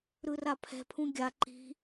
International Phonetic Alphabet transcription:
ɾ ɯ r a pʰ ɛ̤ pʰ ũ ɡʲ a ǃ i̤

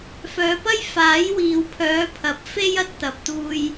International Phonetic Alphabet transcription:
f œː˨˧ p ɐ˥ j f aː˨˥ j w iː˨ w pʰ œː˨˧ pʰ ɐ˨˥ p̚ f e˥ j ɐ˧ t̚ t̪ ɐ˨ p̚ t̪ uː˧ j

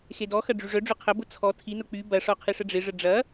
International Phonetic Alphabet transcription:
x e d ɔ x ɐ ɖ͡ʐ y ʐ œ ɖ͡ʐ ʊ qʰ ɐ b ʊ t͡sʰ ɔ tʰ i n ʊ k͡p y b ɐ ʂ ɔ qʰ ɪ ʂ ə ɖ͡ʐ ɪ ʐ ə ɖ͡ʐ ɐ

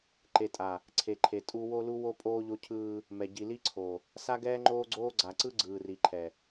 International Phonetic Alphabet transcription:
ǃ e˨ tʼ a˨ | ǀʰ e˨ ǃʰ e˨ tʼ u˦ w o˦ l u˦ w o˦ pʼ oː˦ ʎ o˦ cʰ ɯː˦ | m ɛ˨ ɟ i˨ l i˦ ǀʰ o˨ | s a˦ ɡ ɛː˦ ŋ͡ǃ oː˦ ɡ͡ǀ oː˦ ɡ͡ǀ a˨ ǀ ɯ˦ ɡ͡ǀ ɯː˨ r i˨ ǃʰ ɛ˨

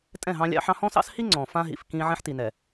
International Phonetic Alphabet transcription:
tʼ ɛ̃˦˨ ɦ ɑ̃˦ lʲ ɑ̰˦ ħ ɑ̃˦ h ɔ̃˦ s ɑ̰˦ s h i˦ ŋ͡ǀ ɔ̃˨ f ã˦ ɦ ḭ˨ f k ĩ˦ ʕ ɛ̃˦ ħ t i˨ n ɛ˨

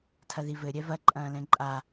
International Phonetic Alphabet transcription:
tʰ ɐ ð i v ɘ ɾʲ ɛ v ɐ ǃʼ ɐ̃ː l ɛ̃ ǃʼ a

